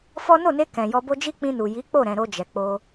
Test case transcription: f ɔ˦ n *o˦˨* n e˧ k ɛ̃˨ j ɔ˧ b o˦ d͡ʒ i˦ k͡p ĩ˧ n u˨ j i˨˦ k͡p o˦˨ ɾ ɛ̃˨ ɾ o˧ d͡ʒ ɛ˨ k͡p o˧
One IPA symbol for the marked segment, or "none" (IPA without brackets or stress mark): o˦˨